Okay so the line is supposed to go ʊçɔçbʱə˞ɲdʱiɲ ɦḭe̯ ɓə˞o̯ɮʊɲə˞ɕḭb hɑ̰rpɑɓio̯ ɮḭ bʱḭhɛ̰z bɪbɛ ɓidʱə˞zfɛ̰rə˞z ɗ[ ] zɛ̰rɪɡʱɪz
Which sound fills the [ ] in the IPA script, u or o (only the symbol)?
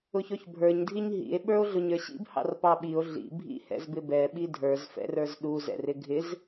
u